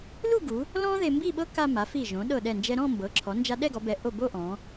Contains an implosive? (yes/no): yes